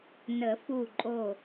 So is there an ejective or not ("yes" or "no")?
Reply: yes